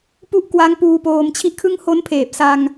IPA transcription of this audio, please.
p u˦˥ ʔ k w a˦˥ ŋ p uː˧ p oː˧ m t͡ɕʰ i˥˩ ʔ kʰ ɯ˥˩ ŋ h o˦˥ n pʰ eː˨˩ p̚ s a˧ ŋ

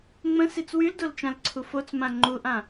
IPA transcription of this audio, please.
ŋ͡m ə̃ s i t͡s w y l d o l t͡ʃ ã l ǀʰ u f o t͡s m ã ŋ͡ǃ u ʔ ã

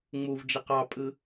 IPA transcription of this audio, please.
ŋ͡m u v d͡ʒ i q ɑ pʼ ɯ

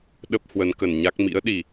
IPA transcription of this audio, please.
ɗ ə˦˥ p̚ h w ə˨˦ n k ə˧˩ n ɲ a˦˥ k̚ m ḭ˧˥ ə̯ ɗ i˧˩˨

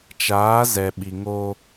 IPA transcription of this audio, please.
t͡ʃ aː˨˦ z ɛ˨ ɓ i˨ ŋ o˦

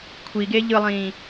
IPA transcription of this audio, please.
kʷʰ i ɡ e ʎ ɯ lˠ ĩː

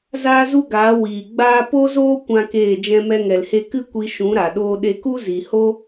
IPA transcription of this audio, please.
z aː˦ z u˦ ɡ aː˨˦ w iː˨ ɡ͡b aː˦ p o˦ z oː˦ kʷ ã˦ k eː˦˨ d͡ʒ ɛ̃˧ m ɛ˧ ŋ ɛ˨ l h e˧ k ɨ˦ kʷ i˧ ʃ ũ˨˦ ɾ a˨ ɗ oː˧ ɗ e˧ k u˦ z i˨ h o˦

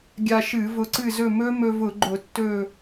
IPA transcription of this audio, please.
ɡʲ a˧ ʃ ɨ˧˩˧ v ʊ˧ ǀ ɨ˥˨ z ɵ˥˨ m ɵ˦˥ m ɵ˧ v ʊ˧˩˧ ɡ͡ǃ ʊ˧˩˧ tː ɵ˥˨

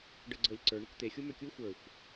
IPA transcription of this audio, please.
ɖ ɤ ɡ͡ǀ ɤ lʲ ǀ ə˞ ɳ ʏ kʷ t̪ e xʲ u m ʏ kʲ u xʷ ə˞ xʷ

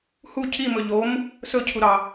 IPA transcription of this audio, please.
h u cʰ i m ɵ ʎ o m | s ɵ cʰ u ɾ ɑ

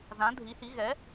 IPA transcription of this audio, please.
z ã˨˥ dʱ i˨˥ h i˨˥ ɣ ɛ˨˥

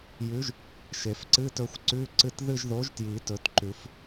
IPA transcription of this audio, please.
j ʉ˨˥ ʒ | ʃ e˨˩˦ f ǀ ɨ˧˥˧ t ɵ˦˨ xʷ ǀ ʉ˧˥˧ ǀ ɨ˦˨ t ð ɨ˦˨ ʒ ð o˨˥ ʒ t j i˨˩˦ t ɵ˨˥ t ǃ ʉ˨˩˦ f

